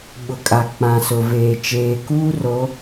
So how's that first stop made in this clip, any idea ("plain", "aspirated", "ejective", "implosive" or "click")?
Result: implosive